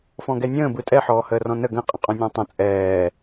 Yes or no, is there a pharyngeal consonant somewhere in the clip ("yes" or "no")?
yes